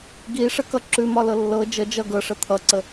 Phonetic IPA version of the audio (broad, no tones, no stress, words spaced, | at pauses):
ɡiʂəkʌ ǁʉmɒlɤ lːɤ d͡ʒə d͡ʒʌ ɡɤʂə t̪ʰʌǀə